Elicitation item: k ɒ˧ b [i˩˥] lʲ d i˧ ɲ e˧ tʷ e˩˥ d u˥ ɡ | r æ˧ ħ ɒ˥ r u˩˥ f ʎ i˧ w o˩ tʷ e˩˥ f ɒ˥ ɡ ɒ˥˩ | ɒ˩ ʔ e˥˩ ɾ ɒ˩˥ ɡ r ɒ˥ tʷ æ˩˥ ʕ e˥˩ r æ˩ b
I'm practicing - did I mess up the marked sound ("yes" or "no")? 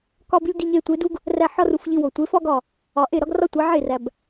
yes